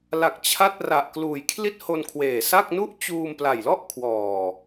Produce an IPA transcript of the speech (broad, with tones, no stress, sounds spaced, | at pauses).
l a˨˩ k̚ t͡ɕʰ a˦˥ t̚ r a˨˩ ʔ k l uː˨˩ j kʰ l i˥˩ t̚ h o˧ n kʰ w eː˨˩ s a˥˩ k̚ n u˥˩ ʔ t͡ɕ uː˧ m p l a˨˩ j l ɔ˥˩ ʔ kʰ w ɔː˨˩